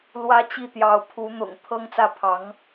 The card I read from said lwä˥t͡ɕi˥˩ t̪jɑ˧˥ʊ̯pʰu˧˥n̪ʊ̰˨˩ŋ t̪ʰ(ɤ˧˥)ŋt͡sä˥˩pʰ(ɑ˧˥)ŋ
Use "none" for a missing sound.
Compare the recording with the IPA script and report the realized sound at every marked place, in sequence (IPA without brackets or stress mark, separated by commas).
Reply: ɤ˥, ɑ˧˥